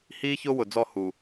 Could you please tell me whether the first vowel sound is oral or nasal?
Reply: oral